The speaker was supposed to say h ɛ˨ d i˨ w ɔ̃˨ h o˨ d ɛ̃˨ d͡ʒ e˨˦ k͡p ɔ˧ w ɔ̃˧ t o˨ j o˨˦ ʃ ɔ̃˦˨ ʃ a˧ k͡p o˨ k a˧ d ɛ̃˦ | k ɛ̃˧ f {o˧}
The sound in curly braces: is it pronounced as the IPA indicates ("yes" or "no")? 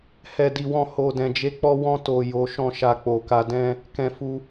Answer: no